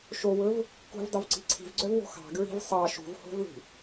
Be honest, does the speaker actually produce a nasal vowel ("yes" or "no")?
no